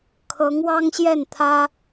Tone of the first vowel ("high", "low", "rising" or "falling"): rising